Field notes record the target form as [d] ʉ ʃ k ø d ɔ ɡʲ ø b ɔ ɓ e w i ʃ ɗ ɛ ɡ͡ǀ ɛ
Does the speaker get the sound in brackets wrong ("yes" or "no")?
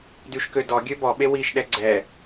no